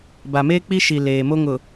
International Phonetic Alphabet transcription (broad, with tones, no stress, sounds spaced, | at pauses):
b a˨ m eː˦ k͡p i˦ ʃ i˨ l eː˨ m o˦ ŋ ʊ˨